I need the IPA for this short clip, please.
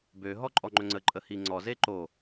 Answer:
bø ɦɔǃʼɔŋ͡ǃɵŋ͡ǀə ǃʼəhiŋ͡ǀɔ zeǃo

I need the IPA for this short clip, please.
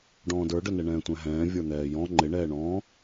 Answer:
ɖɔ̃ːdə˞ɖənɛ ɳɛ̃ːtʷɛ̃ɦɛ̃ː vʲə˞n̪ɛːjɔ̃ ŋ͡ǃɪɳɛːɳɔ̃ː

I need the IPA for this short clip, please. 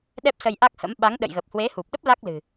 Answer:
ɗɛ˦˥p̚sə˧jʔa˦˥k̚hə̰˧˥m ɓa˨˦ŋɗə̰˧˨jɣə˨˩p̚ hwe˨˦hu˨˩p̚ɗə˦˥p̚ la˦˥k̚lɨ̤˨˩

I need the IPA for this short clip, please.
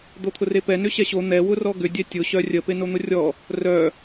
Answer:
d̪ot̪ʰʊrepɛ nʏɕɛɕo n̪ɛ wʊrɔɡʏ dʲɛtʲʊ ɕœrʲə penon̪ʊrʲɔ | rœ

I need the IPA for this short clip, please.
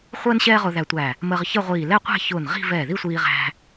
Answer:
χʷəː˥n ɕɛː˥ʁʊː˧ðæ˧tʷæ˧˩ | məː˧ʁçə˥˧ʁʷiː˧˩ lɛ˥˧qʷæ̤˥˧çʊː˧˩nʁi̤˥˧ vɛ˧˩ði˥˧sʷiː˧ʁæ̤˧

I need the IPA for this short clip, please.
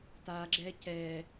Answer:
taɡ͡ǁɛ cɛ

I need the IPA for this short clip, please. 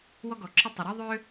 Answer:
wɔ˥ɡɔ˩ǁʰɘ˥ tˤɪ˩ɾɤ˥ ðˤʏ˥

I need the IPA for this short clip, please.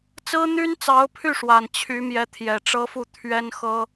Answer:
t͡sɹ̩˥n̪y˥nt͡sɑ˧˥ʊ̯pʰy˥˩ ʂwa˨˩nt͡ɕʰy˧˥mjɛ˧˥ t̪ʰjɛ˨˩ʈ͡ʂɤ˥fu˥˩ t̪ʰɥɛ˥nxɤ˥

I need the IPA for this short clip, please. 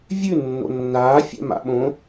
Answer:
vʲʉ nːo̰nːaː fʲɛ̰ma̰ɓõ

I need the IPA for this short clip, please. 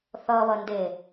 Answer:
θʌβʌnde

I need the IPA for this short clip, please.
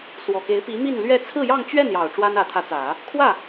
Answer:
swɔ˨˩ke˧˥ɪ̯pi˧˥ mi˥˧nlɥɛ˥˧ t͡sʰɹ̩˥˧jɑ˥˧ŋt͡ɕɥɛ˥˩njɑ˨˩ʊ̯ ʈ͡ʂwa˥nä˧˥t̪ʰä˧˥t͡sä˨˩˦ | kʰwä˥˩

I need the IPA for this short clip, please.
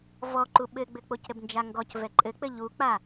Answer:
vɔǃu ɓɘɡ͡bɘk͡pocɾɘb nd͡ʒaŋɡɔc vɛǃʼɘk͡pɘ ʎuk͡pa

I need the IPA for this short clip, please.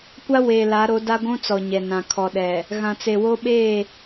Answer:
kʷa˦weː˨la˨˦ɾo˨˦ da˦ɡʷũ˦t͡sɔ˨ ɲɛ˨ nã˨ kʰɔ˨ɗɛ˨ | ɣã˨t͡se˨wo˦ ɓeː˦˨

